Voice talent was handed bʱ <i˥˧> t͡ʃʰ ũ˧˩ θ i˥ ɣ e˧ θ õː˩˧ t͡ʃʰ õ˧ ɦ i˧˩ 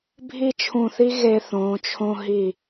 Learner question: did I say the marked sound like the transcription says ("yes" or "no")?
yes